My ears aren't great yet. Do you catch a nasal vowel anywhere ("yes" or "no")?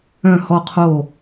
yes